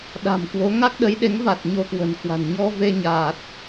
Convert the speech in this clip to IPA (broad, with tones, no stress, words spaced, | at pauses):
ɗa̤˨˩mkwo˨˦ ŋa˦˥k̚ɗə˨˦jɗe˨˦ŋva˨˩t̚ ɲo˧kwə̤˨˩nkwa̤˨˩n ɲɔ˧ve˧ɲaː˨˩t̚